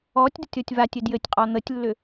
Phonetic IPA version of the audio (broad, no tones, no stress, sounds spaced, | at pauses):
ɔ tʲ d ə tʲ ɔ tʲ v a tʲ ɘ d j ɘ tʲ qʼ ɔ n̪ ə tʲ lː ʏ